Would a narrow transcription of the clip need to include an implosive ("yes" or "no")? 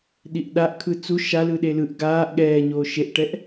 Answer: yes